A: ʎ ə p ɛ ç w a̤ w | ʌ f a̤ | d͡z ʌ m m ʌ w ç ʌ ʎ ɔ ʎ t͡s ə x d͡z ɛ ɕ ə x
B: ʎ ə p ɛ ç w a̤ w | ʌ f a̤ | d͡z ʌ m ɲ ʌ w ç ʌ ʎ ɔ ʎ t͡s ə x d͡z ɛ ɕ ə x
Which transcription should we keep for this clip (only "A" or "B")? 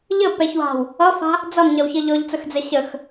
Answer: B